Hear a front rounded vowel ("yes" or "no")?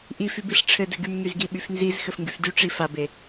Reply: yes